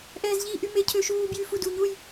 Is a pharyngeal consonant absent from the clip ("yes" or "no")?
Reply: yes